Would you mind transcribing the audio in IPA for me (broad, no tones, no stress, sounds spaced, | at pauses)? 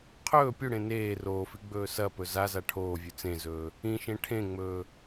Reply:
qʰ ɵː pʲ u ɽ ẽ n eː r oː f i ɡ͡b ɵː s ɐ p ɵ z a z a ʈʰ oː vʲ ʉ t͡s ẽ z ɵː | ĩ ʃ ẽ ʈʰ ẽ ŋ͡m ɵː